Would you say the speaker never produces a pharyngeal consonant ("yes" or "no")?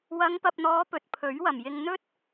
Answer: yes